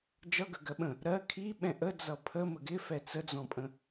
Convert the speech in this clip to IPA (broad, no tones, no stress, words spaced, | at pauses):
d͡ʒʌɡə ɡɜɓə̃ | ɾɜ kʰiɓɛ̃ ʔəd͡zʌ pʰəmə ɡɪfɛ t͡səd͡zɔ̃pʼə̃